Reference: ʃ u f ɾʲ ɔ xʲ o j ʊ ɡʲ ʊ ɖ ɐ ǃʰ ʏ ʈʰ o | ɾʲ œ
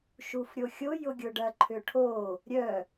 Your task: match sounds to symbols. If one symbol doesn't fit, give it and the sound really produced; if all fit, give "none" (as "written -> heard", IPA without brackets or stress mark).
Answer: ɔ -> o